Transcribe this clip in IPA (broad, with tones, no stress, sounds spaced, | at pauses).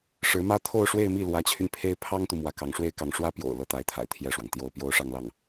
ʂ ɻ̩˧˥ m ä˥ t̪ʰ o˥˧ ʊ̯ ʂ w e˥˧ ɪ̯ m i˥˩ l w ä˧˥ t͡ɕʰ y˧ n pʰ e˥ ɪ̯ pʰ ɑ˥ ŋ t̪ u˨ m w ä˧˥ k ɑ˧˥ ŋ ʂ w e˥ ɪ̯ k ɑ˧˥ ŋ ʂ w ä˥ p j o̰˨˩ ʊ̯ l ɤ˥˩ t̪ a˧˥ ɪ̯ t̪ʰ a̰˨˩ ɪ̯ t̪ʰ j ɛ˥˩ ʂ w ɑ˩ ŋ t̪ j o˥˩ ʊ̯ p j o˥ ʊ̯ ʂ ɑ˥˧ ŋ l ɑ˥˩ ŋ